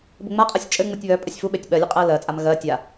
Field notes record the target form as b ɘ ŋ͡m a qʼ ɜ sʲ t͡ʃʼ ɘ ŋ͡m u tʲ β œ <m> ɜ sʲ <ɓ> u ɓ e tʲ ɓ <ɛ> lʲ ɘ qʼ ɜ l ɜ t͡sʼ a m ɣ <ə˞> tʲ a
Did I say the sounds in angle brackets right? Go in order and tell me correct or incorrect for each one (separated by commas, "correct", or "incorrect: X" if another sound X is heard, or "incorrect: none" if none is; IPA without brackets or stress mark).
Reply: incorrect: pʼ, incorrect: f, incorrect: ɜ, incorrect: ɜ